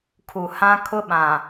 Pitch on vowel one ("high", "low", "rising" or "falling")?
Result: low